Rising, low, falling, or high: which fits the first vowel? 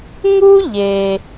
high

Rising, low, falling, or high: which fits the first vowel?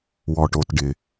low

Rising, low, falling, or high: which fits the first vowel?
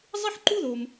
high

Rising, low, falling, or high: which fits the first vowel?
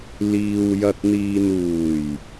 low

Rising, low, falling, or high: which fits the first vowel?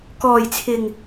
low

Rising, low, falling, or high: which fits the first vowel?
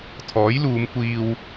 rising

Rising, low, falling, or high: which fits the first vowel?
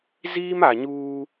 high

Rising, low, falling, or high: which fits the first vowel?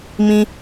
high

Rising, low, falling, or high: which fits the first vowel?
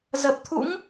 low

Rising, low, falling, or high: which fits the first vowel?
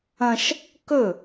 high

